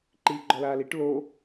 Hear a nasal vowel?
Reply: no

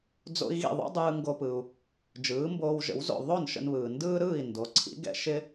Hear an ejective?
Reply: no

